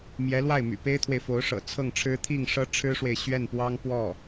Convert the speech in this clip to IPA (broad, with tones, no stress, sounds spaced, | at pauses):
m j ɛ˧˥ l w a˥˩ ɪ̯ m y̰˨˩ p e˥ ɪ̯ t̪ʰ w e˨ ɪ̯ f o˧˥ ʊ̯ ʂ ɤ̰˨˩ t͡sʰ ɤ˥˩ ŋ ʈ͡ʂʰ ɻ̩˥ t̪ʰ i˥˩ ŋ ʂ ɤ˥ ʈ͡ʂʰ ɻ̩˥ ʂ w e˨ ɪ̯ ɕ ɥ ɛ˥˩ n p w ɑ˥ ŋ p w ɔ˥˩